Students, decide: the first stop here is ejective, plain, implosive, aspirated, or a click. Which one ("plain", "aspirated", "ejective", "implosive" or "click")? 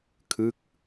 aspirated